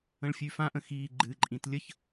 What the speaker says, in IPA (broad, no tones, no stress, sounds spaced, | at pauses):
ə̃ ɭ fʲ ʉ f ã ʔ ə̃ x iː ɡ͡ǃ ɨ ǃʼ ĩ t lʲ ə ç